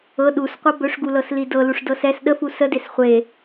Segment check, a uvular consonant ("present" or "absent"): present